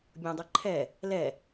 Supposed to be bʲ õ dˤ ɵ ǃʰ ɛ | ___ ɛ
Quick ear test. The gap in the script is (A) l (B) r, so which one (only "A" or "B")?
A